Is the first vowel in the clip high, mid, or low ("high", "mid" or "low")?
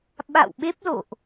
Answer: low